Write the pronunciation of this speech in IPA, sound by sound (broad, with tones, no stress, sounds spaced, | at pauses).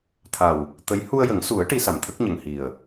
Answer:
t̪ʰ a˨˩ w | t̪ ə˧˥ j h u˧ ə̯ j ə˨˩˦ ŋ s u˨˩˦ ə̯ ʈ i˧˥ s a˨˩ m t̪ʰ ə˦˥ k̚ ɲ ə˨˩ ŋ h i˨˩ ə̯